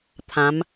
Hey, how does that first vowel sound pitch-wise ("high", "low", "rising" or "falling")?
rising